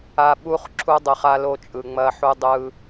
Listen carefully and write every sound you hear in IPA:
a˨ ɓ u˦ χ ǁʰ u˦ dˤ ɯ˨ χ a˦ l o˦ t͡ʃʼ ɯ˨ ŋ͡m ɐ˦ ħ u˦ dˤ ɯ˦

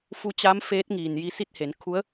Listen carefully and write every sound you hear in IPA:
f u˧ t͡ɕ a˧˥ m f eː˧˥ t̚ ŋ iː˩ n j i˧ s i˥˨ t̚ h e˩˧ n kʰ u˧˥ ə̯

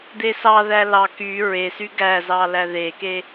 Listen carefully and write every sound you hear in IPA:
d̪ e s ɑ ð æ l ɑ k y ɹ e s y ɡ æ z ɑ l æ ð e k e

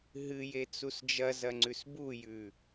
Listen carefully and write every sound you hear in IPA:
ɦ ɨ j e t͡s u s d͡ʒ ɐ z ɐ ŋ͡ǀ ʉ s b u j ʉ

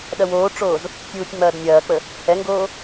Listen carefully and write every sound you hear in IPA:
ɗ ɐ w oː ʈ͡ʂ oː z | tʲ uː tʲ ŋ͡m ɐː d nʲ ɐː k͡p ə | h ɛ ŋ ɡ oː

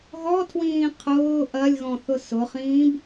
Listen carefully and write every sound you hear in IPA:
ɣ ɔ tʰ w ĩː qʰ ʊː ʔ ɐ lʲ ɣ ɔ̃ θ ʊ s ʊ χ ĩː b

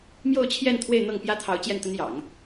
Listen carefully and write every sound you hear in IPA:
m j o˥˧ ʊ̯ t͡ɕʰ j ɛ˥˧ n t̪ʰ w e˥˧ ɪ̯ n̪ ɤ˥˩ ŋ p j ä˥ t̪ʰ ɑ˧˥ ʊ̯ t͡ɕ j ɛ˥˩ n t̪ ə˥ n j ɑ̰˨˩˦ ŋ

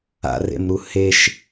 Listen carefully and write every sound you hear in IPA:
a̰ r ḛ m ɾ u h e ʃ

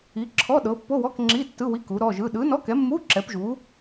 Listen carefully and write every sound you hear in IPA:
i˨˥ ǁʰ ɔ˧˥˧ ɗ ɤ˨˥ pː o˧˥˧ w ɔ˧˥˧ k ŋ͡ǁ i˧˥˧ tː ɯ˧˥˧ w i˧˥˧ k u˨˥ ɾ ɔ˧˥˧ ʒ ɯ˧˥˧ ɗ ɯ˨˥ n ɔ˧˥˧ k ɛ˨˥ mː u˧˥˧ ǁ ɛ˨˥ p ʒ u˨˥

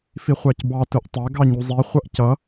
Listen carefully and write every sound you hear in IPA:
f i χʷ ɑ c b ɑ t ʊ ʔ tˤ æ ɡ ɑ ɲ u zˤ i χʷ ʌ ʔ c ʌ

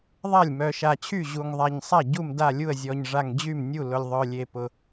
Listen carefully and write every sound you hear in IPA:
ðˤ a˥˩ lʲ m œ˨˩ ʃ a˨˩ t͡ɕʰ y˥˩ ʑ u˨˩ ŋ ðˤ a˨˩ ɲ sˤ a˥˩ ɟ u˥˩ m d a˥˩ lʲ u˥˩ ə̯ zʲ ɔ˨˩ ɲ ʐ a˨˩ ŋ d͡ʑ y˥˩ m nʲ u˥˩ l ʊ˨˩ lʲ ðˤ œ˨˩ lʲ e˨˩ p ʊ˨˩

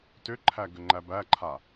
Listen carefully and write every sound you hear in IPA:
t ʏ ǃʰ æ ɡ ʏ ŋ͡ǃ æ b æ ǃʰ a

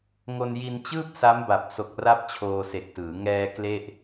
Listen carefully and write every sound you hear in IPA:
ŋ o˧ n j i˧ n t͡ɕ ɯː˥˩ p̚ s a˦˥ m b a˨˩ p̚ s o˨˩ k̚ r a˦˥ p̚ t͡ɕʰ oː˧ s e˨˩ k̚ t ɯː˩˦ ŋ ɛː˧ k l e˥˩ ʔ

